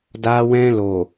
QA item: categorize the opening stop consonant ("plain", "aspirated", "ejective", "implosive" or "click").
plain